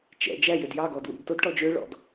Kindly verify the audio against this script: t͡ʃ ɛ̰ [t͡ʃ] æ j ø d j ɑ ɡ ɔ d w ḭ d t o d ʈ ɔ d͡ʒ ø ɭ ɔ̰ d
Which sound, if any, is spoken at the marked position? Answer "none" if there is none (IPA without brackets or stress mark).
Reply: d͡ʒ